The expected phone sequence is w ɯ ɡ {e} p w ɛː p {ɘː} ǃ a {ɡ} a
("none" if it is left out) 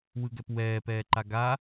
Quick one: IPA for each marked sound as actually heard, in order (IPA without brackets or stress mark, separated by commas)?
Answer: ɛ, ɛː, ɡ